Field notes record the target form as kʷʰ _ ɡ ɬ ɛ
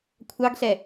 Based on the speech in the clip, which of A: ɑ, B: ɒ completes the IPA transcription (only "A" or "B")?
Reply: A